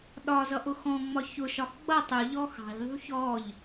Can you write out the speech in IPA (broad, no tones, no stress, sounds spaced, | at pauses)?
ɗ ɒ z ʌ ʔ ʊ x ɔ̃ ŋ͡m ɒ ç ʊ ʃ ɒ x ɡ͡b ʌ tˤ u ʎ ɔ x ɑ̤ ʎ ðˤ ṳ ç ɔ ʎ